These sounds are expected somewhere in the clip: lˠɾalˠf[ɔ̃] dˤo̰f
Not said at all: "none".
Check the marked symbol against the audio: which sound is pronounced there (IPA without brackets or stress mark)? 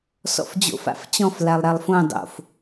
õ